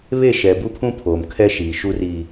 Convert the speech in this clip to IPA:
βe˦˨ʃɛ˨ bu˦pʰũ˦ pʰoː˨mkʰɛ˦ ʃiː˨ʃu˦riː˦

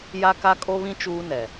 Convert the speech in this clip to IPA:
ja˦ka˦kʼo˦βĩ˦ t͡ʃuː˦nɛ˨

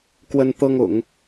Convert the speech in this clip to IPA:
kwə˥nt̪ɤ˥ŋ ʊ̰˨˩˦ŋ

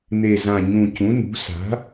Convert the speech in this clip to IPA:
n̪e˨˩zã˨˩ ɲũ˨˩ cũ˩˥nṳ˩˥ sa̤˩˥

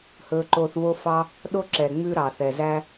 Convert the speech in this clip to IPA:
hɵː˧ǃo˧θvo˦fɑ˦ | ɗo˦ǁɛ˨ ŋ͡mʉ˦ɾɑ˨θɛ˨ zæ˦

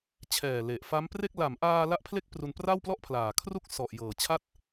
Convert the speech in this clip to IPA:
t͡ɕʰɛː˨˩ le˨˩ʔfa˦˥mpre˥˩k̚ la˩˦mʔaː˧ la˥˩ʔpʰle˥˩k̚pru˧npra˥˩w plɔ˥˩ʔpʰlaː˨˩kʰru˥˩k̚ sɔ˨˩ʔjɤː˨˩ t͡ɕʰa˥˩t̚

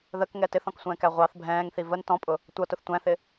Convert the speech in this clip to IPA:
ðəkŋɛ tɪθɔ̃ksʷɛ̃ːkæ ʁʷɑθ bʱɛ̃ːŋθi vən tɔ̃pʼʊ | tʷʌtʊθ tʷæ̃θɪ

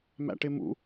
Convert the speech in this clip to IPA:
mæ̰ʈɪmṵ

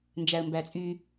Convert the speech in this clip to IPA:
nd͡ʒæə̯mbæt͡sʼy

